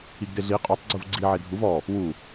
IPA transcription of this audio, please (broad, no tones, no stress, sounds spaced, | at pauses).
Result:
i ɡ d e ɮ i qʼ u tˤ ɡ͡ǀ u v ɡ͡ǀ i ʕ e dʱ u v ɔ | w u